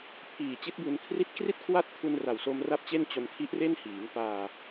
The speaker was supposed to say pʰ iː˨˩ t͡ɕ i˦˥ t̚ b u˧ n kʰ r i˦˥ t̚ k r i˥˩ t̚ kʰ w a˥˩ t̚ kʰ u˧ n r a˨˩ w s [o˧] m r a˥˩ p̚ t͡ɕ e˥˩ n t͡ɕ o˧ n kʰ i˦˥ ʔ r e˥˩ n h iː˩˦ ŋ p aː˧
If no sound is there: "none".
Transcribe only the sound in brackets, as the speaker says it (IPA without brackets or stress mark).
o˧